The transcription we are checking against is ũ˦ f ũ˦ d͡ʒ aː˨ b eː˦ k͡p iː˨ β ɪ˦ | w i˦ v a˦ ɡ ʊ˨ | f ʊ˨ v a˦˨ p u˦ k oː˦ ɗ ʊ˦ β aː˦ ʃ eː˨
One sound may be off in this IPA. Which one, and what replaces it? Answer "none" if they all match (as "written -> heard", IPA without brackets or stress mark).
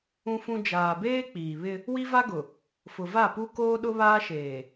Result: none